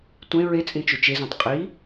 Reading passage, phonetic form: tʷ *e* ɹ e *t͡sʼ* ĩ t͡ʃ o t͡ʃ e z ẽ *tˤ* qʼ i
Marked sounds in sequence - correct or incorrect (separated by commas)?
incorrect, correct, correct